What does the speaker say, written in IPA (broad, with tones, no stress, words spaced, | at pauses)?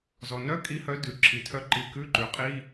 zɔ˩nœ˧˥˧ kʼi˨˦ hœ˨˦dʉ˩ǁʰi˩tʰœ˨˦ ǃi˨˦ kʉ˧˥˧ǃʉ˩qʼi˧˥˧